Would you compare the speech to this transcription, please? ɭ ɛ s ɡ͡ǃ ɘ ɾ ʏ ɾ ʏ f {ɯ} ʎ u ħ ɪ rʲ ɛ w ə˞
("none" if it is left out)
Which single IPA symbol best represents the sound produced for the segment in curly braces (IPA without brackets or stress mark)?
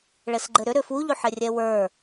u